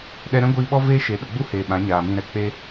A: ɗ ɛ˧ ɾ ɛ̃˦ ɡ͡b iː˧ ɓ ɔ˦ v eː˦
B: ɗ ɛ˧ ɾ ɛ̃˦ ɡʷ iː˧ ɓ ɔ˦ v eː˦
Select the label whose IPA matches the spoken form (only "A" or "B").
B